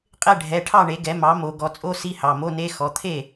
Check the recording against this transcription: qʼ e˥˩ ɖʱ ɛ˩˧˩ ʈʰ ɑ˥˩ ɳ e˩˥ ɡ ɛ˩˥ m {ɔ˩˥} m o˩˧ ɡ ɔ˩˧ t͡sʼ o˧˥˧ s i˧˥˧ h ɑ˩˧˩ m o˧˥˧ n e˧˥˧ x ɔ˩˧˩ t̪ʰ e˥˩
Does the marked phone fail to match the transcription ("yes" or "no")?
yes